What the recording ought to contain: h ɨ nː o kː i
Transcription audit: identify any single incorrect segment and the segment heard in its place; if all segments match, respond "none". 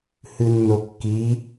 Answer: none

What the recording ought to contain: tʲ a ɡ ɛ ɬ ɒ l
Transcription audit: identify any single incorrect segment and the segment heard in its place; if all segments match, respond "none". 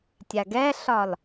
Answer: none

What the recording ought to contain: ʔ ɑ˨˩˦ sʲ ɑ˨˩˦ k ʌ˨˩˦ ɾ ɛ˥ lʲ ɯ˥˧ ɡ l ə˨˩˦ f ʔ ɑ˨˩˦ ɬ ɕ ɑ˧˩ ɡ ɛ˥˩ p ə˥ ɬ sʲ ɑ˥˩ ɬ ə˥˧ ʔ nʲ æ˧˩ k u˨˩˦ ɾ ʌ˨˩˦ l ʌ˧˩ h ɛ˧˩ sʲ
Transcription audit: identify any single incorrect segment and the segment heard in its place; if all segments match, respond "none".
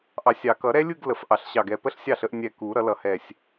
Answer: æ˧˩ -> ɛ˧˩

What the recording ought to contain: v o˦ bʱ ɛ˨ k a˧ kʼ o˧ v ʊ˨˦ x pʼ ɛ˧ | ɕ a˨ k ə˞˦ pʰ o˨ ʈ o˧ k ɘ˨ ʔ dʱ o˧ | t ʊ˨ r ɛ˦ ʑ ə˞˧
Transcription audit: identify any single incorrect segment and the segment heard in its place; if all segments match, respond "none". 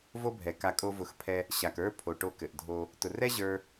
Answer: pʼ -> pʰ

